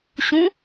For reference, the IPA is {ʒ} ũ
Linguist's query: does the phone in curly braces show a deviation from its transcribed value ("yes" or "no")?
yes